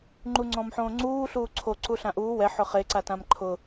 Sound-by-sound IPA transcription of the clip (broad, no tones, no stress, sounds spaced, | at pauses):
ŋ͡ǃ u ŋ͡ǀ ɔ̃ m ħ õː ŋ͡ǀ uː ɬ uː ǀʰ o ǀ u ɬ ã ʔ uː w ɛ ħ ʊ χ e ǀ a t ã m ǃʰ ʊ